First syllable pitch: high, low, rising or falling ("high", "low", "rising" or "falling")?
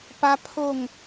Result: high